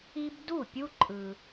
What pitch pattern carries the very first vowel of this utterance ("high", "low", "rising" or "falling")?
high